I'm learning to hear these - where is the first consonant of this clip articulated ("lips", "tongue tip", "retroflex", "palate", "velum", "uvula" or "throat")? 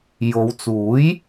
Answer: palate